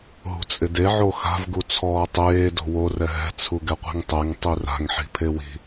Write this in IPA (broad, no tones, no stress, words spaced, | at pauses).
ɦṳt͡sʼɪde ʕoxa̤v ɡut͡sʰɔːtˤeː do̤wo rɛɦɛ̤ t͡sʰuɡɛqʷi̤ŋtˤɛŋ tˤira̤ŋ ħi̤pʰewi̤